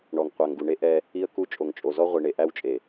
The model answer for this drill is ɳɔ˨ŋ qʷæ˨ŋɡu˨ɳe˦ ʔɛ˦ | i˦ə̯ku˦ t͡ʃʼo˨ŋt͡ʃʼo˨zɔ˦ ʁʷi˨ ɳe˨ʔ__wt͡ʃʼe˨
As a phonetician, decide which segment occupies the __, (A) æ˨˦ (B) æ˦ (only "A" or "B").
B